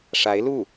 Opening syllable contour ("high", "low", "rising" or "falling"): rising